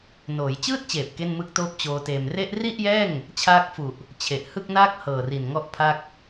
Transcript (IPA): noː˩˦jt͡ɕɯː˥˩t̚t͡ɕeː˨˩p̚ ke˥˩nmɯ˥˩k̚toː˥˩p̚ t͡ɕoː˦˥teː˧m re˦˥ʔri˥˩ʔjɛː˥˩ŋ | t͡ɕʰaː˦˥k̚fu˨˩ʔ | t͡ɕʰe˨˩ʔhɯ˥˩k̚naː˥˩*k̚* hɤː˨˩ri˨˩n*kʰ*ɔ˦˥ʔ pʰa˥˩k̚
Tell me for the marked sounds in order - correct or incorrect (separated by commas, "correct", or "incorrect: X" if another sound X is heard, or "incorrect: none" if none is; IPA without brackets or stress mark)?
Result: correct, incorrect: ŋ